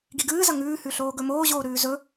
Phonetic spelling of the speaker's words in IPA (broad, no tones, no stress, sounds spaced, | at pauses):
ɡ i ɡ ɨː z ɐ ŋ ʉː h ʉ ɬ oː ɡ ɵ m oː ʑ oː ɾ ʉː z ɵ